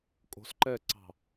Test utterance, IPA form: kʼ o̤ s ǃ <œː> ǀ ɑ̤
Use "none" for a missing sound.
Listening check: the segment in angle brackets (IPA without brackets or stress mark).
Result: ɛː